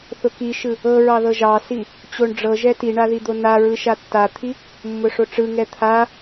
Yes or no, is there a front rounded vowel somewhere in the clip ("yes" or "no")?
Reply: no